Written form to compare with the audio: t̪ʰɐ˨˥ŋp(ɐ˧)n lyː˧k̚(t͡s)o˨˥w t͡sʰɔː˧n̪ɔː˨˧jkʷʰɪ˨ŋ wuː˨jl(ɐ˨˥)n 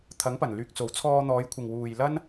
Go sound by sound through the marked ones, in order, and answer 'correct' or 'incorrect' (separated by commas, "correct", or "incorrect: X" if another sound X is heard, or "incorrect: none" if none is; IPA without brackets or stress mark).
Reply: incorrect: ɐ˨˩, correct, incorrect: ɐ˥